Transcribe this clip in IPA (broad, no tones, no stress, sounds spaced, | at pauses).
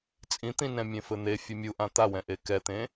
t͡sʼ ĩ t̪ ĩ n ɛ̃ mʲ ẽ f ɘ n̪ e fʲ ɘ mʲ u ʔ ã t̪ a w ɛ̃ ʔ e k ɛ t̪ ẽ